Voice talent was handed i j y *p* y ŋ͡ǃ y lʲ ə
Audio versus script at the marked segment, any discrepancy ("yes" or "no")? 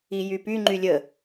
no